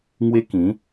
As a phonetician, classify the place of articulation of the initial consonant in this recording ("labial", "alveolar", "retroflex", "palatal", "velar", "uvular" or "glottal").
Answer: velar